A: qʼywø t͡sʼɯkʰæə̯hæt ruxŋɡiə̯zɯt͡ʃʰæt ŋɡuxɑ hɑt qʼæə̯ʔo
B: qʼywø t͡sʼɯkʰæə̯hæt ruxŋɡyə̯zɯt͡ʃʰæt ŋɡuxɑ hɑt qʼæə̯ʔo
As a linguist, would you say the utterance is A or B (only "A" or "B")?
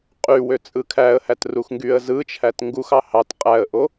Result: B